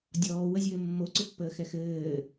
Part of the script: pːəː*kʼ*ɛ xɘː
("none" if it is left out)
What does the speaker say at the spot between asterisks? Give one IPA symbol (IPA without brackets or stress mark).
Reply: x